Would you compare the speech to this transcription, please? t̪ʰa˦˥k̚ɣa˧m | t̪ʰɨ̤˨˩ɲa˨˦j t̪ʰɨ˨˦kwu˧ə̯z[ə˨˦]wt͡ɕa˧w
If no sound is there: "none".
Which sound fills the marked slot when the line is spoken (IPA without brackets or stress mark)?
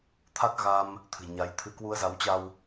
a˨˦